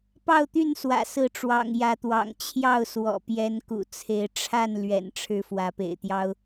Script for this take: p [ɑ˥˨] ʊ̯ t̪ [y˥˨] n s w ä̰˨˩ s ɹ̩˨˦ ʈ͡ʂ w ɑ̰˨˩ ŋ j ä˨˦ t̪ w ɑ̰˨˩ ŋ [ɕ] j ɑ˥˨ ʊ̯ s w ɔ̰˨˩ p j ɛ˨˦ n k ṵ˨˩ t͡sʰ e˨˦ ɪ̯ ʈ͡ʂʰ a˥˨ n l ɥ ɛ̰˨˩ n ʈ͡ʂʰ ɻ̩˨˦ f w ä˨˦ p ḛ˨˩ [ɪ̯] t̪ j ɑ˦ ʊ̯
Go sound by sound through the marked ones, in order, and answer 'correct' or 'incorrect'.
correct, correct, incorrect: t͡ɕʰ, correct

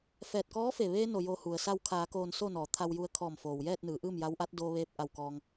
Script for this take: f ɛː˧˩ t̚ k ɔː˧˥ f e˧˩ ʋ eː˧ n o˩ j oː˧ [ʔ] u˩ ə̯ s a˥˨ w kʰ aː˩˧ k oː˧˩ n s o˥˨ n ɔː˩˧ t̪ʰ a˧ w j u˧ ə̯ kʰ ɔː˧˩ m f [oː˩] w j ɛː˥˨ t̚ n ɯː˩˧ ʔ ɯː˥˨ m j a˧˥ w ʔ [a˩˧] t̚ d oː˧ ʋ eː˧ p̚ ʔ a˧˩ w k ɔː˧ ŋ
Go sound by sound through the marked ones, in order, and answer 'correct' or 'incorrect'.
incorrect: h, correct, incorrect: a˧˥

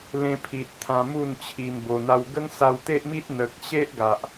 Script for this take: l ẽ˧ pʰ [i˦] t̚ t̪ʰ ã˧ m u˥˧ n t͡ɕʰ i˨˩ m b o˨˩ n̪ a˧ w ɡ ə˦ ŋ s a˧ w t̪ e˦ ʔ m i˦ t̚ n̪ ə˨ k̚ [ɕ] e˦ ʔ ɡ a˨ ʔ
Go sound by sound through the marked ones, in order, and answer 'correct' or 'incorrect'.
incorrect: i˨, correct

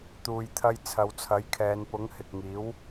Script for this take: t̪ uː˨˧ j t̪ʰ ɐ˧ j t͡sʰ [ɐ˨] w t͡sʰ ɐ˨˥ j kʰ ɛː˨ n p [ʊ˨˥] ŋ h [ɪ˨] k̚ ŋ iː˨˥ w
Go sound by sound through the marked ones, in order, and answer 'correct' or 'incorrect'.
incorrect: ɐ˨˧, correct, correct

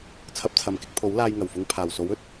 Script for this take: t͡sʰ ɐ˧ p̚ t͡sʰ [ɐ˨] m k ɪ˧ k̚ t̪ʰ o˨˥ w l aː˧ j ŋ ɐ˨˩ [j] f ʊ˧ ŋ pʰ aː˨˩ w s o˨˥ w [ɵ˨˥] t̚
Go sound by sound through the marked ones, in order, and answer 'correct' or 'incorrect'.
correct, incorrect: w, incorrect: ɵ˥

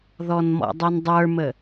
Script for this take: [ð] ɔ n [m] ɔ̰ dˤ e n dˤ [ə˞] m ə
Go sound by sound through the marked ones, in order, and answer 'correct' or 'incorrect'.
correct, correct, correct

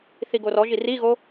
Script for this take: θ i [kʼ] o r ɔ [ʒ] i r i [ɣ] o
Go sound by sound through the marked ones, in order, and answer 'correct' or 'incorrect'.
incorrect: ɡ, correct, correct

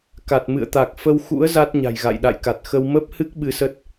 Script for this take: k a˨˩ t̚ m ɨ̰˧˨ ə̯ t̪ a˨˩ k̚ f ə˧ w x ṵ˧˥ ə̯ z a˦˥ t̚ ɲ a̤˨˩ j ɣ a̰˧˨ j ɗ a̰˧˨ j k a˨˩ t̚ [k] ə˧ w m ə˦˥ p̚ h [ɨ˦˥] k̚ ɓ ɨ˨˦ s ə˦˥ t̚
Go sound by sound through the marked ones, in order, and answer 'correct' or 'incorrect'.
incorrect: x, correct

